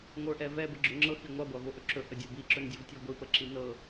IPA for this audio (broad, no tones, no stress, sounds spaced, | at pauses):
ŋʷ ə˞ ʔ ɛ v ɛ b ə ɡ͡ǁ ɵ ŋ͡ǁ ɤ x i ŋʷ ɑ ɡʷ ɑ v o ʔ ɵ ǁ ɵ ʔ ə dʲ ə˞ b i ǁ ɵ n dʲ o v tʲ e ɡʷ i p ə ǁ i n ɤ